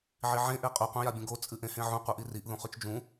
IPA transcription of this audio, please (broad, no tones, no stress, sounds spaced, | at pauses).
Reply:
ʕ i ʕ ẽ ʔ e qʼ ʉ qʷ ẽ j a bʲ ũ ɡ o t͡sʼ ɨ ʔ ẽ h ẽ ʕ ũ qʷ i ʔ i r i ʔ ð ũ χ ʉ t͡ʃ d͡ʒ ũ